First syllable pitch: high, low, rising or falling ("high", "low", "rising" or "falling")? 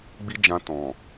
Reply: high